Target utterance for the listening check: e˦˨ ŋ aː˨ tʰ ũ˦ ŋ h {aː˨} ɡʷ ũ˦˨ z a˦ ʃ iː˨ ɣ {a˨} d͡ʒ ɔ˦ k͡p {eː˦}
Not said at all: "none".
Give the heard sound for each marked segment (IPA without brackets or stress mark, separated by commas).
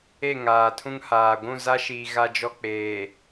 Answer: aː˨, a˦, eː˨